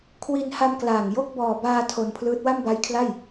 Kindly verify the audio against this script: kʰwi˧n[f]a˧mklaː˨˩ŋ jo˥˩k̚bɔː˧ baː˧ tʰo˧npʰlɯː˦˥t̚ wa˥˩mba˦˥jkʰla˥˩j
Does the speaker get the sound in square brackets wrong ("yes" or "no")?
yes